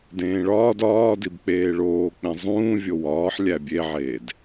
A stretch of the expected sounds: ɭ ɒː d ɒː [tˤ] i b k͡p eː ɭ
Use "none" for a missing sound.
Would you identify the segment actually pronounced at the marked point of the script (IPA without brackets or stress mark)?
d